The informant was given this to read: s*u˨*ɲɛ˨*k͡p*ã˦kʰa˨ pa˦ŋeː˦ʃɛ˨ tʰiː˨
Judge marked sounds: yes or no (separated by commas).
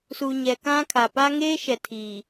yes, no